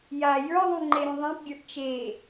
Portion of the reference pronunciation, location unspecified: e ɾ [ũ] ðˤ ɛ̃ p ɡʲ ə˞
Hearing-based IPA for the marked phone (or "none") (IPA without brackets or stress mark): ũ